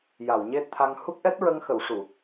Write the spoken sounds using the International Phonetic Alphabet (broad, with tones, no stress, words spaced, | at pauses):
ja˨˩˨wɲe˦˥t̚t̪ʰa˧ŋ hu˦˥k̚ʔɛ˦˥t̚ɹə˧ŋxə˨˩˨w ʂu˨˩˨